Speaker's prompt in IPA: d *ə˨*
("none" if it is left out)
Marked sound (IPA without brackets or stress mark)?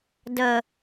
ə˨